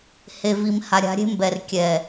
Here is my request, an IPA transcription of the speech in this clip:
h e˨ v i˨ m h a˨ ɾʲ a̤˨˦ ɾʲ e̤˦ m b ɛ˨ r kʲ ɛ˨

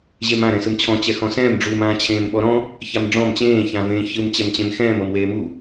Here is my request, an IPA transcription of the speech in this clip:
ʑ e m ã ɾ ɛ̃ s ɯ m t͡ɕʰ ɔ̃ t͡ɕ ɛ x ɔ̃ s ɛ̃ː m ɖ͡ʐ u m ãː t͡ɕʰ ẽː m ɓ ɔ ɾ ɔ̃ | ç a m ɖ͡ʐ ɔ̃ m t͡ɕ ẽː ç ã v ẽː ç ɯ m t͡ɕ ɛ m t͡ɕ ẽ m x ɛ̃ː m ɤ m w eː m u

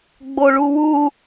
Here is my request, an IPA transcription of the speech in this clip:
ɡ͡b o ɭ u w u

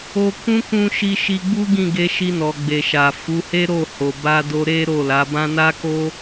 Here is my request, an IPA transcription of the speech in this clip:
o˦ k ũ˦ k ũ˧ ʃ i˧ ʃ i˧ ɡ͡b u˦ ɡ ĩ˦˨ ɡ e˧ ʃ i˧ n ɔ˨ ɡ͡b e˨ ʃ a˨ f u˨˦ h e˦ ɾ o˦˨ h o˨ b a˧ d o˧ ɾ e˦ ɾ o˦˨ l a˨˦ b ã˦ n a˦ k o˦

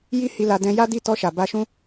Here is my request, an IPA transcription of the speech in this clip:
j i˦ h i˧ l a˧ d ɛ̃˧ j a˦ d i˦˨ t ɔ˧ ʃ a˨ b a˧ ʃ ũ˦

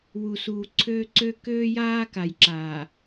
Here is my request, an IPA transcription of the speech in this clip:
w u˨ s uː˨ ǀʰ øː˦ ǀ ø˦ k øː˦ j aː˦ k a˨ j ǁ aː˨

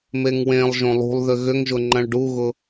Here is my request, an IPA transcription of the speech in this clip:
m e ŋ w ẽ lˠ ʒ õ lˠ ṳ lˠ ð ʏ ɣ ʏ ŋ ʒ ʊ ŋ͡ǃ ɐ̃ ɭ ɖ u ɣ ʊ

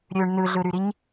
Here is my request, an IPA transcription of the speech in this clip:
ɾʲ ø ɳ n ɯ ɮ ɯ ɾ y ɾ i ɲ

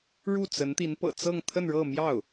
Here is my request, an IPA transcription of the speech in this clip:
ɻ u˥˩ t͡s ə˧˥ n t̪ i˧˥ n p ɤ̰˨˩ t͡s ɤ˥˧ ŋ t̪ʰ ə˥˧ n ɻ ɤ˥˧ m j ɑ˥˩ ʊ̯

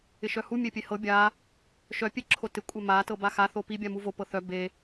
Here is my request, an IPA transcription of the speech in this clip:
ɪ ʃ œ h u mʲ e pʲ e h ɤ bʲ a | ʃ œ pʲ e ǁʰ o t ɪ kʷʼ œ m a t ɤ b a x a θ o p i bʲ a m u v o p ɤ θ œ b e

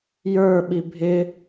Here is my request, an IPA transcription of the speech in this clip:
j ə˞ ɓ i bʱ ɪ

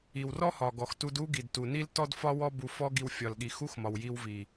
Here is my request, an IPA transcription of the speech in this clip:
i˨ w r ɔ˦ h ɒ˨ ɡ ɔ˨ x t u˧ d u˦ ɡ i˨ d t u˨ n i˦ l t ɔ˦ d f ɒ˧ w ɔ˧ b u˨ f ɔ˦ ɡ i˧ w fʲ ɒ˨ l ɠ i˨ x u˦ x m ɒ˨ w j i˧ w v i˨

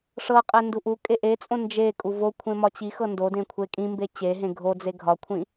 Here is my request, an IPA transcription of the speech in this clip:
ʂ ɤ qʼ ɛ n d u ʔ u kʼ e ʔ e t͡sʼ õ n d͡ʒ e kʼ u v o kʷʰ ẽ m ɒ t͡ɕ i x ɤ n d o d ẽ kʷʰ e kʼ ĩ m b e t͡ɕ e ɦ ẽ ɡʱ o d͡z e ɡʱ ɒ kʷʰ ĩ

